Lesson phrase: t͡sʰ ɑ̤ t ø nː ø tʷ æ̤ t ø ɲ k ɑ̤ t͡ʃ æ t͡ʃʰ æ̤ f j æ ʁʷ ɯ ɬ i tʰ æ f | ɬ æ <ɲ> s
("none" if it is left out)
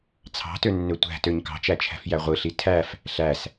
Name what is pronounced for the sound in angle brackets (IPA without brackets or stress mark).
none